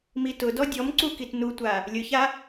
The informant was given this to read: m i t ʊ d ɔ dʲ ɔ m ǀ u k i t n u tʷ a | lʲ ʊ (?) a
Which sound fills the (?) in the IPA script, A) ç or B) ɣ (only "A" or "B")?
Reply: A